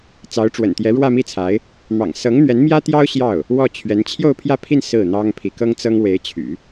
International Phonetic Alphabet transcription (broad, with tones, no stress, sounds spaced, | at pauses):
t͡s ɑ˧˥ ʊ̯ ʈ͡ʂ w ə̰˨˩ n t̪ j ɛ˧˥ ɻ w ä˥˧ m i˥˩ t͡sʰ a˧˥ ɪ̯ | m ɑ̰˨˩ ŋ s ɤ˧˥ ŋ n̪ ɥ ɛ˧˥ n m j ä˥ t̪ j ɑ˥ ʊ̯ ɕ j ɑ˥˩ ʊ̯ | w ɔ˥˩ t͡ɕʰ ɥ ɛ˧˥ n t͡ɕʰ j o˥˧ ʊ̯ pʰ j ä˥˧ pʰ i˥˧ n s ɹ̩˥˩ n̪ ɑ˥ ŋ pʰ i˧˥ k ɤ˥ ŋ t͡s ɤ˥ ŋ w e˧˥ ɪ̯ t͡ɕʰ y̰˨˩˦